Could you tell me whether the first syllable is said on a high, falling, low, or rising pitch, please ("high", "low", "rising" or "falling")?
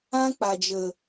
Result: high